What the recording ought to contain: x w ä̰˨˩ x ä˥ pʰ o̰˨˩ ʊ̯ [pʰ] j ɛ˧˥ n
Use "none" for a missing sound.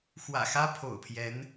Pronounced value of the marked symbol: pʰ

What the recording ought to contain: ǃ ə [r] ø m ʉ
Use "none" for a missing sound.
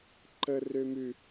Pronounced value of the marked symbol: r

